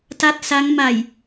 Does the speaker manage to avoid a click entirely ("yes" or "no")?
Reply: yes